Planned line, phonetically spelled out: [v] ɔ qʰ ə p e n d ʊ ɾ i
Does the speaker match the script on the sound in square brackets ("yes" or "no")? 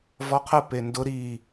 yes